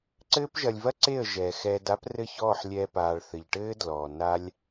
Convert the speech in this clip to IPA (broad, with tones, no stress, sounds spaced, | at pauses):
ǀ ɘː˦ p ʒ ɐ˧ lʲ v ɐ˦ ǀ e˦˨ ə̯ ʒ ɛː˨ x ɛː˧ d a˦ p r ɘ˦˨ ç ɔː˦˨ ħ lʲ ɛː˧ p aː˨ ɭ θ ɘ˨ ʎ ʈ ɘː˦ d l ɔː˨ n a˦ lʲ